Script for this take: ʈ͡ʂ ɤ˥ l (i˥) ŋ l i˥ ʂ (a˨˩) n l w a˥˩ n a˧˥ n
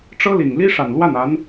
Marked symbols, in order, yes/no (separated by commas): no, yes